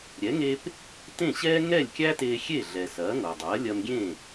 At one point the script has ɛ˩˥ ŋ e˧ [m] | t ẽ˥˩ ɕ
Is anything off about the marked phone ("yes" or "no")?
yes